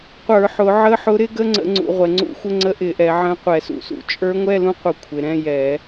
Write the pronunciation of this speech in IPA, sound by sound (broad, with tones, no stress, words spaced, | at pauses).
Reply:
qʷə˞˧˩˧ħʊ˩˧ ʕə˧˥˧ħʊ˧˥ ɾɪ˧˥ɡə˧˥˧ŋ͡ǀə̰˧˩˧ ŋ͡ǀṵ˩˧ʁʷɛ˩˧ŋ͡ǀṵ˧˥xʷə˧˥˧ ŋ͡ǀə˧˥ʔɪ˧˩˧ʔɛ˩˧ ʕə̃˧˥˧ qʷɛ˧˩˧sṵ˧˩˧sṵ˩˧ t͡ʃʼə˞˧˥ŋʷɛ˧˥˧lũ˧˥qʷə˧˩˧ kʷʰɪ˩˧ɾɛ̃˧˥˧jɛ˧˩˧